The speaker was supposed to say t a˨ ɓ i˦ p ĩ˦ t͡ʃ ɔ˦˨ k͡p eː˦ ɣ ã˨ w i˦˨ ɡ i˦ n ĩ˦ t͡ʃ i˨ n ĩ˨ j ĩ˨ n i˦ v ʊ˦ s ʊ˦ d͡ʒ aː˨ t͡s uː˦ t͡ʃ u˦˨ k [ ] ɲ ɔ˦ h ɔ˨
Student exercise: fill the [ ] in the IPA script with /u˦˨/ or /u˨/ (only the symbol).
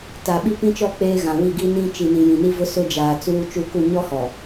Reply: u˦˨